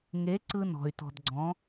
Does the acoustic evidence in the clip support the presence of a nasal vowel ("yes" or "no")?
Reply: yes